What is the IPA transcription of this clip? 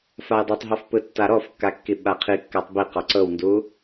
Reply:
f a j dˤ ɤ tˤ ɦ ɔ f p ɯ tː a ɾ ɔ f kː a kː i ɓ a qʰ i kː a tˤ b i q ɔ ǀ ɤ w n d u

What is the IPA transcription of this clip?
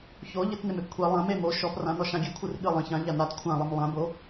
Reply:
ç o ʎ ɨ t n e m e p kʷʰ e lˠ ã m e m o ʃ ɔ p r ã n ɔ ʃ ã ɡʲ ɨ kʷʰ ɨ r ɠ ɨ lˠ ɐ̃ ç ã ʎ a n a t kʷʰ ã lˠ ɘ m lˠ ã b o

